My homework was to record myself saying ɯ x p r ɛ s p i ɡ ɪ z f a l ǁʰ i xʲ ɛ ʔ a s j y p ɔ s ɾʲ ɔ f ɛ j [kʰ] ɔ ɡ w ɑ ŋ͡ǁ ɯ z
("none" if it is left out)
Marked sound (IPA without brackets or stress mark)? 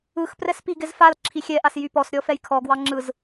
kʰ